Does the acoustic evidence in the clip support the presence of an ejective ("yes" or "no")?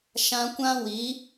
no